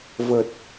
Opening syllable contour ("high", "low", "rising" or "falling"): low